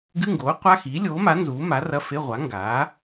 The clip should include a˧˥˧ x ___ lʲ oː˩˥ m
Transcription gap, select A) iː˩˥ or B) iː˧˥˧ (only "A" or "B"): A